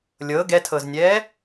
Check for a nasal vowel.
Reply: absent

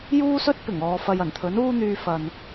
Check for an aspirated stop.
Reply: present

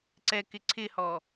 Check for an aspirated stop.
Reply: present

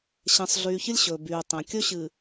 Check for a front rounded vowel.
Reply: present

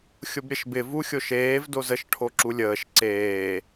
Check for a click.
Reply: present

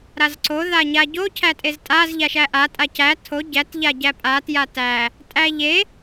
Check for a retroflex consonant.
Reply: absent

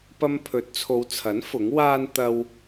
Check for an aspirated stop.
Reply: present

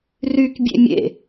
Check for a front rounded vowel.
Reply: present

